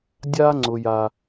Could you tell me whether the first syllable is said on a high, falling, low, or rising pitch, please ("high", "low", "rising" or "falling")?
high